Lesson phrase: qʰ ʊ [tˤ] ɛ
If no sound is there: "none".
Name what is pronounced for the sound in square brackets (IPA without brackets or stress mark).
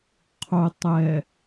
tˤ